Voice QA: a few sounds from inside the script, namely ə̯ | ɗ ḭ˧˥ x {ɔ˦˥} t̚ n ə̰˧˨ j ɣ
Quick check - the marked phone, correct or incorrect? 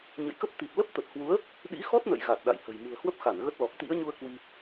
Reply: correct